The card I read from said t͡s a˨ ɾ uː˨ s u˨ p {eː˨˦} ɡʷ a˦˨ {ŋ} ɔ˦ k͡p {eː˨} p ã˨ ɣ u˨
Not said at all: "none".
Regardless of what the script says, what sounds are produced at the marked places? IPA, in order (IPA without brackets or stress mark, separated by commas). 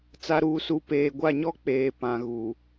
eː˨, ɲ, eː˨